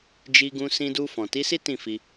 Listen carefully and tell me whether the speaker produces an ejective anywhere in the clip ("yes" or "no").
no